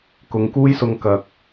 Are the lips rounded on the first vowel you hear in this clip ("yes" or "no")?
yes